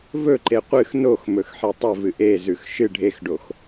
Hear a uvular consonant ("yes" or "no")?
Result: yes